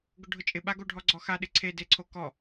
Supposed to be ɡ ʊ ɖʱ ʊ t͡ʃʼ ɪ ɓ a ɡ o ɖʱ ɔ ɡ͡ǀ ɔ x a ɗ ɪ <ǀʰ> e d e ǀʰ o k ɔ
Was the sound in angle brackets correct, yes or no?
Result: yes